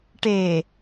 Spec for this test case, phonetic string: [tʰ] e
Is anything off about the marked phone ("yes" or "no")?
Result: yes